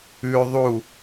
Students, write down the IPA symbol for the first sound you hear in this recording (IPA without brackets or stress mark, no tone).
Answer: ʉ